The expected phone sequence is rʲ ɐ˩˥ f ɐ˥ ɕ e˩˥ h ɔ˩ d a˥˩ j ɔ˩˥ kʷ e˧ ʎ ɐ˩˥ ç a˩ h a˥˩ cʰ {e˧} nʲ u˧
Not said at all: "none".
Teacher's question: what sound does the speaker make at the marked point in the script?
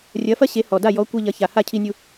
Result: i˧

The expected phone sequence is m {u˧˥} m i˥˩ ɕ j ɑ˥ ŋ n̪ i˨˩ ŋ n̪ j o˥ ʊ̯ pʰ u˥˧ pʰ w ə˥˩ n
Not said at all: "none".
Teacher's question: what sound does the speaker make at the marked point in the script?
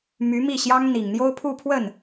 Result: y˧˥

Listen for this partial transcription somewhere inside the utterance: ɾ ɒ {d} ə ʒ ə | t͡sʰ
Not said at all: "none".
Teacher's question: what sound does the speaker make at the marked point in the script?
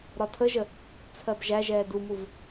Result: tʰ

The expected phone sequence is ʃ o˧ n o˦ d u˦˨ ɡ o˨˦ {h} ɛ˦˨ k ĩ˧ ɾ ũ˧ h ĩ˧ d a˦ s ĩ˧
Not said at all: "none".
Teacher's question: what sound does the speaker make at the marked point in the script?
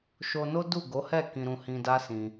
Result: h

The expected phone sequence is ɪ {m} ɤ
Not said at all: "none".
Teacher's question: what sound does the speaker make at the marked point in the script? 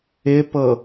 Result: p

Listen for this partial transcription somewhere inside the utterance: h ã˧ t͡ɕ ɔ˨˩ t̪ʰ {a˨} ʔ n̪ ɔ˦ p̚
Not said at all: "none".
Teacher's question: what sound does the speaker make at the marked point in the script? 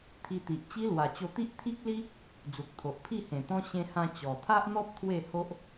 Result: a˦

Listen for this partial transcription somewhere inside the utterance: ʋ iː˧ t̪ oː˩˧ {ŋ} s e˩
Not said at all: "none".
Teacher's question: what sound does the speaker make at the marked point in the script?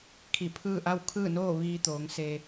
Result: ŋ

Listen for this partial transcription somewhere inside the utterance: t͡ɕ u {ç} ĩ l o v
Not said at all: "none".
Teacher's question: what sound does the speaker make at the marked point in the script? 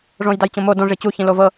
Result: ç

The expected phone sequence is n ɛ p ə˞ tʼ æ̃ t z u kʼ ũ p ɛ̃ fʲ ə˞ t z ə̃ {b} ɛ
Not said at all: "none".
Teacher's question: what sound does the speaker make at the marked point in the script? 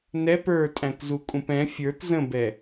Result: b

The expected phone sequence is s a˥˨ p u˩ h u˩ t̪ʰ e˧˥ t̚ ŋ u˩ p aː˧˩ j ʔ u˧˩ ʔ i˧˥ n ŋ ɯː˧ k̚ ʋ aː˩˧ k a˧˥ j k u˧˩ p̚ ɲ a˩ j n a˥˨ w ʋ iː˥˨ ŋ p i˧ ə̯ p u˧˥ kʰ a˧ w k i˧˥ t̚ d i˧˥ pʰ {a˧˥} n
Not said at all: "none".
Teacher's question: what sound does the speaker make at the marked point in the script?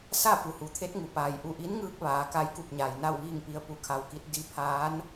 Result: aː˧˥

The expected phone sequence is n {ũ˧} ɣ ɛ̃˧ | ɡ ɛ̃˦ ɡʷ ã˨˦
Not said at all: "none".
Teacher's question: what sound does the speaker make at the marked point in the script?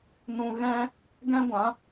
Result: ũ˧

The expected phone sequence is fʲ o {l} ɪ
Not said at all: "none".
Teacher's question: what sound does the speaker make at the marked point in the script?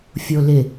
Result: l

